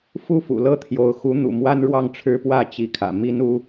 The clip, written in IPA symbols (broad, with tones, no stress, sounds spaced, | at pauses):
f u˥˨ f ṵ˨˩ l ɤ˦ t̪ʰ j o˨˦ ʊ̯ x u˨˦ n̪ ṵ˨˩ m w a˦ n ɻ w ɑ˥˨ ŋ ʈ͡ʂʰ ɻ̩˦ p w ä˥˨ t͡ɕ i˨˦ kʰ ä̰˨˩ m i˦ n u˦